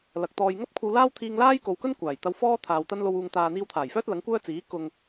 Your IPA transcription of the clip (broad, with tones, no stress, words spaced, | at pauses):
lɐ˨k̚ t̪ɔː˨jŋɐ˥p̚ kʷʰɐ˧wlaː˥wt̪ʰiː˧ŋlaː˥j ko˨wkɵ˥n kʷaː˨˩jt̪ɐ˧wfɔː˥ t̪ʰaː˨wt̪ɐ˥nlo˧w uː˨ŋt̪aː˨ n̪iː˧wt̪ʰaː˨˩jfœː˥t̚ lɐ˨˥ŋkʷœː˥ t͡siː˨˥ kʊ˨ŋ